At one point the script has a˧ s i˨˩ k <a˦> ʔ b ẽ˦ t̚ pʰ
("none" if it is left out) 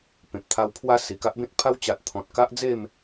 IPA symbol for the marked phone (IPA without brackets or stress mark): a˦